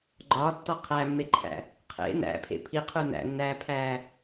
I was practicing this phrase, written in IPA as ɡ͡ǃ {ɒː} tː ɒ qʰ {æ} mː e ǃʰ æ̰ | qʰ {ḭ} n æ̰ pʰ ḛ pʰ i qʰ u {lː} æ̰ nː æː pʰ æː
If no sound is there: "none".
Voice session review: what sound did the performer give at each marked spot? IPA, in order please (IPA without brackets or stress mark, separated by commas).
ɒː, æ, ḛ, n